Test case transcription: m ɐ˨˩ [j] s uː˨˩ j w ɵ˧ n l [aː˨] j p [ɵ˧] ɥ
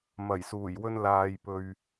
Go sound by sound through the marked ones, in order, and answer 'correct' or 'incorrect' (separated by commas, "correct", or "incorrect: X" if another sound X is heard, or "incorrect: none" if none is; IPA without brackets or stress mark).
correct, correct, incorrect: ɵ˨